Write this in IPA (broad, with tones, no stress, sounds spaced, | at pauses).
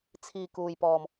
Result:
t͡sʰ iː˨˩ k uː˨˩ j p ɔː˨˩ m